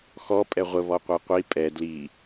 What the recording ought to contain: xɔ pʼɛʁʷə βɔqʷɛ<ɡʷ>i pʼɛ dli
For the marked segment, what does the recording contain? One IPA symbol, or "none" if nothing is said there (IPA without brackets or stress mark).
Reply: qʷ